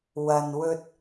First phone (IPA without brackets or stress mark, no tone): w